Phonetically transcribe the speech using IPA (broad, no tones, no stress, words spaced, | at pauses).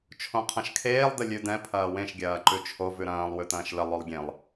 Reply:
t͡ʃʰõqʰɐ̃ʃkʰeːlˠ dəlʲʉdɛ̃ pʰɐːwẽʃ ɡʲɐːǃʉt͡ʃʰo vʉɾɐ̃ːlˠ wʉtɐ̃ːʃlə lˠolˠɡʲẽlˠ